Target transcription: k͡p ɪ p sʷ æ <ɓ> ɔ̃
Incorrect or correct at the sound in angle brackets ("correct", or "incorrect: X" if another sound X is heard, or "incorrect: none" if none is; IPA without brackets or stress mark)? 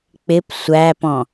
incorrect: p